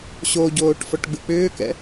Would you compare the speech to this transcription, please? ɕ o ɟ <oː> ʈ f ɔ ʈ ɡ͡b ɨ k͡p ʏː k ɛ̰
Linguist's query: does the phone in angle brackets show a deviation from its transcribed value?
no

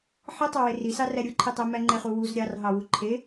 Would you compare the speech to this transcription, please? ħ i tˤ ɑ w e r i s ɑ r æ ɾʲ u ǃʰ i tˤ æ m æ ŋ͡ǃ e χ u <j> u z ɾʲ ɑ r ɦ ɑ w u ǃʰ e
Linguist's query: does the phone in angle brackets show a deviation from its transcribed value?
yes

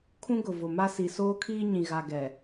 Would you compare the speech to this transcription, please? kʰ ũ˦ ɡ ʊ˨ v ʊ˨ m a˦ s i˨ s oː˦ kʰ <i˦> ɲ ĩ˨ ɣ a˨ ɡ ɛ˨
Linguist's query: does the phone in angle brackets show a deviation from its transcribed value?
yes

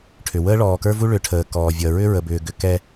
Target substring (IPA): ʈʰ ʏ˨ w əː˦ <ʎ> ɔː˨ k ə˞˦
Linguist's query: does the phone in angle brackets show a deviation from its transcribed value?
yes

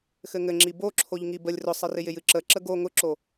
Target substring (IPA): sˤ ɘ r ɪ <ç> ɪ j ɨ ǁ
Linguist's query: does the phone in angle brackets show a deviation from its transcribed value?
yes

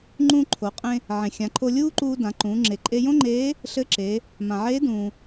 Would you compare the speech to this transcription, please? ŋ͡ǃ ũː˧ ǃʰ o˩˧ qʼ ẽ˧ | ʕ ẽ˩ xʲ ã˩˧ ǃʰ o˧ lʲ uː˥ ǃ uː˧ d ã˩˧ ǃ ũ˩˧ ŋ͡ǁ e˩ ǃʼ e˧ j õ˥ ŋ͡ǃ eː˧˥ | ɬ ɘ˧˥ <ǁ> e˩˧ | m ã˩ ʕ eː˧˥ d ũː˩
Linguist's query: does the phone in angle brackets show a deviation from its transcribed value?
no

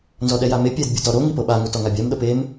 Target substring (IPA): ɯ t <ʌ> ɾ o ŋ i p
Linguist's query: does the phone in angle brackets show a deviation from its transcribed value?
yes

